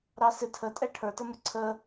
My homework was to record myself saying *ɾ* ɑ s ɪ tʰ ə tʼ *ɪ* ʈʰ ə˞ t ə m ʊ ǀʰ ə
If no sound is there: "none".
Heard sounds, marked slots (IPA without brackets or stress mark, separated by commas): ɾ, ɛ